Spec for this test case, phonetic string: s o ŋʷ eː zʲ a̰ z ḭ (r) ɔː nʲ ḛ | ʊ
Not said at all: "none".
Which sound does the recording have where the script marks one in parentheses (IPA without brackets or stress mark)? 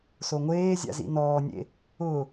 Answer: n